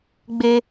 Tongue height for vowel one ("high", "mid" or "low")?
mid